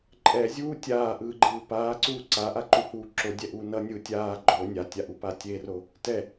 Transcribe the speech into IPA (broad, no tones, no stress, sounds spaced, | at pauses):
ǃʼ ɛ zʲ uː tʲ aː ʔ ɯː ɡ͡ǃ ɯː p aː ǀ uː ǀ a ʔ a ǃ u h uː ǁ o dʲ ɛ ʔ uː n ʌ nʲ ɯː tʲ aː ɡ͡ǃ o nʲ a tʲ a ʔ u p a tʲ e r o | t ɛ